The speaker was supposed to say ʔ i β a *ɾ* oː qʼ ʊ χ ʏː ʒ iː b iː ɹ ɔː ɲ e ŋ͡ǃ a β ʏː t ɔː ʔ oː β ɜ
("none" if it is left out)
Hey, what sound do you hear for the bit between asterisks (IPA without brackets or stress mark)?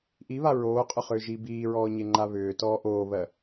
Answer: ɹ